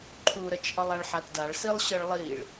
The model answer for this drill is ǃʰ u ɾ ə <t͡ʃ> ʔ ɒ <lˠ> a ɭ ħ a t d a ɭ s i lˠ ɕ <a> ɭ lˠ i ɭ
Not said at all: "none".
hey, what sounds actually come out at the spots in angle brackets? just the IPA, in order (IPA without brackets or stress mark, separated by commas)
t͡ʃ, lˠ, ə